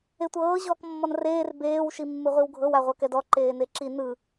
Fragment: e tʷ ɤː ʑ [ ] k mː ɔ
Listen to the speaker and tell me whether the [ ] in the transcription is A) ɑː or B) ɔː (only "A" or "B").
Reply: B